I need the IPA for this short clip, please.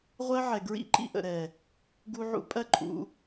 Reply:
ʁʷ ɜ˧ ʕ ɛ˨ ɡ ɹ ḭ˦ ǃ ḭ˧ ʔ ə̰˨ ɾ ɛ˨ | ɡ u˧ ʕ ṵ˧ pʼ ɜ˦ ǃʼ ṵ˧

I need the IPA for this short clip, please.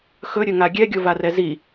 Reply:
x ɵ ɾʲ ɵ ŋ a ɡʲ ɛ ɡʲ o v a r ɛ z i

